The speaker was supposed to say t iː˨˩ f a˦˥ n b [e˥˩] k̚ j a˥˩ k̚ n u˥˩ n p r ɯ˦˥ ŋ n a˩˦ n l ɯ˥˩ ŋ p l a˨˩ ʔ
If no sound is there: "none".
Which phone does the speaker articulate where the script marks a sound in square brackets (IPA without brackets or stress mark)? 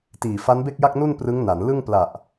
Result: e˥˩